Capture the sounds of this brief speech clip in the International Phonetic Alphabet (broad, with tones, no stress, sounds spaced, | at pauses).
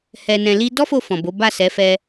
h ɛ˧ n ɛ̃˧ l i˦ d ɔ˦ f o˧ f ɔ̃˨ b o˨˦ b a˦˨ s ɛ˨˦ f ɛ˧